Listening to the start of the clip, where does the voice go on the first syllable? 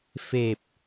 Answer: low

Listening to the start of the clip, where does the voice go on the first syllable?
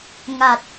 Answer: low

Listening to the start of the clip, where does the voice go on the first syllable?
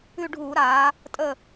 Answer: falling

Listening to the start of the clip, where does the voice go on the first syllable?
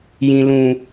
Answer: low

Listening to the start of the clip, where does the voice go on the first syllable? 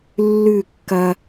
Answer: falling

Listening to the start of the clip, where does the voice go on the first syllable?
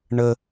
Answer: high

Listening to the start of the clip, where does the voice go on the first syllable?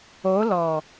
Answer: rising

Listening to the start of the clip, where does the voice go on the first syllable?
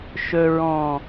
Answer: low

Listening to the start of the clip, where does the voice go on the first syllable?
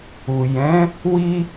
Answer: low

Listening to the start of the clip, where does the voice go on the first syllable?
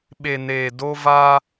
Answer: low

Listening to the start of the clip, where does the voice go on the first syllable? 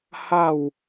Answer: falling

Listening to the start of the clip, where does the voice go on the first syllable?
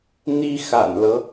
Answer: high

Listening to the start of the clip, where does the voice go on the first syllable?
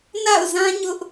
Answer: falling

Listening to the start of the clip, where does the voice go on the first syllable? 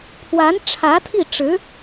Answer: rising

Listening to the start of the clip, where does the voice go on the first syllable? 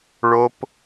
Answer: high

